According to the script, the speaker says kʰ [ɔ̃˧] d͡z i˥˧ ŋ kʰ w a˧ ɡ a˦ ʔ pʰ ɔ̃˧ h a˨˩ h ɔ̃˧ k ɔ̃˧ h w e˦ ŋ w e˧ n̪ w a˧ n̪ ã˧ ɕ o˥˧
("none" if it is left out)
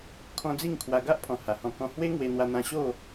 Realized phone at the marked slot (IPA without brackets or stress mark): ɔ̃˧